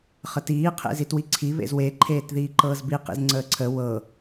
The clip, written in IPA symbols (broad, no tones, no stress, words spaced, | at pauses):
χətiː qʰḛzitwiǀʰi βḛzwe ǃʰeːtðiːǃɤːzbi qḭzŋ͡ǀəːǀʰə wɤ